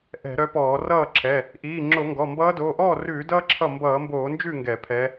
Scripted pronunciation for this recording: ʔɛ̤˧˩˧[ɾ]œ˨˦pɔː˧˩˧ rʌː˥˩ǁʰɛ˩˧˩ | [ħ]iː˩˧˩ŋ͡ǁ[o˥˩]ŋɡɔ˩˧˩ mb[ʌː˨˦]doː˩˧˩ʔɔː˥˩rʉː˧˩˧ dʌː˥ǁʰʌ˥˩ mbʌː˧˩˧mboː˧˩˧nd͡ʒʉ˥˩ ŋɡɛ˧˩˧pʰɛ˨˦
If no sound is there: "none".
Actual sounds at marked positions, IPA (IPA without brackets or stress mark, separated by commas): ɾ, ʔ, o˧˩˧, ʌː˨˦